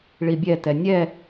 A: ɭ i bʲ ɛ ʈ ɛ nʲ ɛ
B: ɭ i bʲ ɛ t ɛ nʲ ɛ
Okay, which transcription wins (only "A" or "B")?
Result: B